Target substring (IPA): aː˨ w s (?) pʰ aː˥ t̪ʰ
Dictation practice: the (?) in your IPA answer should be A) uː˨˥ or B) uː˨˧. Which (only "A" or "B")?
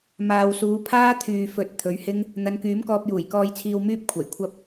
B